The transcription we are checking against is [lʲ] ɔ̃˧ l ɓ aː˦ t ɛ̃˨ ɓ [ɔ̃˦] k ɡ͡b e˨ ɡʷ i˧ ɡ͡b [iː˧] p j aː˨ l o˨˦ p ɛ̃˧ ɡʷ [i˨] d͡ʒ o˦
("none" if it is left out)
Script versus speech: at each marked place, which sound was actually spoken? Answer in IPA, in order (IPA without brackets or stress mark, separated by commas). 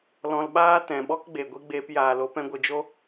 l, ɔ˦, eː˧, ɨ˨